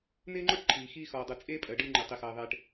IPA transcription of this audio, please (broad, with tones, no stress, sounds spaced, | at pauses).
n ɪː˥ ŋ͡ǃ ɔ˥ ʈ ǃʰ iː˩ x iː˧ x ɔː˩ dˤ ɯ˩ t͡sʼ eː˥ pʼ ɜ˩ ɖ ɯː˧ ŋ͡ǃ ɪː˩ tˤ i˩ x ɜː˩ ðˤ eː˩ ʈ